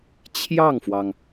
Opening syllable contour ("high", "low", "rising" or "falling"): falling